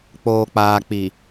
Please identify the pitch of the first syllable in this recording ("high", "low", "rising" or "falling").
low